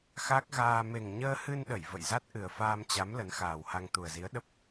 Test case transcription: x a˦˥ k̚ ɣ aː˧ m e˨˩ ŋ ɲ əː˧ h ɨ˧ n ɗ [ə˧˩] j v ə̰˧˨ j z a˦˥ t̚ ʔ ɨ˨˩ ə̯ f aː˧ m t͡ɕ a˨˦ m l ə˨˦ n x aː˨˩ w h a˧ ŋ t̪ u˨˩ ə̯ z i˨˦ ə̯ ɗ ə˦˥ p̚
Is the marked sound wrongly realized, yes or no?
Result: no